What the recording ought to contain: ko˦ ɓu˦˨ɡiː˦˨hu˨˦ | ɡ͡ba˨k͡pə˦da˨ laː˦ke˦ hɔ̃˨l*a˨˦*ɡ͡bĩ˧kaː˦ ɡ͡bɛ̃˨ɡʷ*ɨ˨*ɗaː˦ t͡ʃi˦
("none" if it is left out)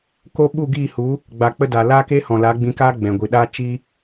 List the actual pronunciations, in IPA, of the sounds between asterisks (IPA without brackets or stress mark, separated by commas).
a˨˦, ɨ˨